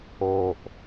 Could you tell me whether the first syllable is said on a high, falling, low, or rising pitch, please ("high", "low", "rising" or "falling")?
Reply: low